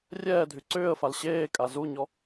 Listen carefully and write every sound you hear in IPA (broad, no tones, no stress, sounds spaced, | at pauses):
rʲ ɛː dʱ y ǀ ʏː ə̯ f a l ɕ eː kʼ a z u ɲ ɔ